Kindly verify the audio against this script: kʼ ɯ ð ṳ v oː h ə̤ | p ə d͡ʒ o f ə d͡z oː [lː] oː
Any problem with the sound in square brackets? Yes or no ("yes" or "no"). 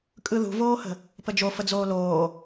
yes